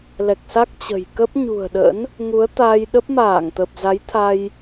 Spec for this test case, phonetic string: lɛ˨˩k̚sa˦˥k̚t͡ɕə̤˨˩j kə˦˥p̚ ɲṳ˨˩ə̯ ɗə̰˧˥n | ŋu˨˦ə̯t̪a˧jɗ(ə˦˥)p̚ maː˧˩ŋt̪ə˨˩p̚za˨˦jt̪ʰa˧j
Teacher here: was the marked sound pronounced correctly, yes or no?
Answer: yes